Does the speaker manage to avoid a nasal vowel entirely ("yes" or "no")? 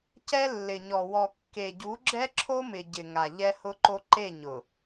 yes